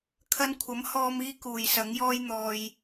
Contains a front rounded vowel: no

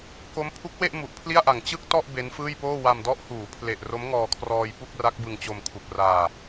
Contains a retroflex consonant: no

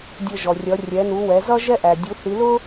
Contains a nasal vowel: no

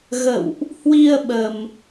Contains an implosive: yes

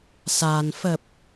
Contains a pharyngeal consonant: no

